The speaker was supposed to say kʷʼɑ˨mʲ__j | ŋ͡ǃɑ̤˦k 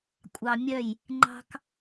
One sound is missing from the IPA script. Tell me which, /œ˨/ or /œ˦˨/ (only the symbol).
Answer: œ˦˨